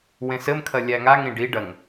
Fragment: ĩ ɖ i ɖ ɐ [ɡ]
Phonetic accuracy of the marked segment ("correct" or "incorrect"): incorrect